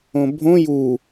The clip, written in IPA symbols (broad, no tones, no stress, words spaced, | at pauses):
õbʱõ ju